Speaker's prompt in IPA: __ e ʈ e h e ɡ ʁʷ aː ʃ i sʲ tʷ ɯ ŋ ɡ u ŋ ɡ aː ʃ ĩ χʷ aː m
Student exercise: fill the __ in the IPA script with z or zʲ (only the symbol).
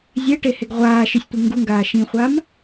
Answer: zʲ